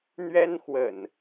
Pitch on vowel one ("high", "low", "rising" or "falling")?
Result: high